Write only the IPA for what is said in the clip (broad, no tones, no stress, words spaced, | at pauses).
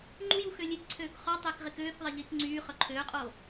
ŋ͡ǃujuxø lʲekǀʰøːk χɔtˤekʁɪ køːkðˤɪʎiːk ŋ͡ǀyːχœ ǃʰøːqʼo